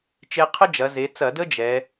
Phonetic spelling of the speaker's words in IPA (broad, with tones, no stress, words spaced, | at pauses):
t͡ʃe˧qʰə˥d͡ʒɐ˩˧ ze˩˧t͡sɐ˧˩˧də˥ d͡ʒɛ˩˧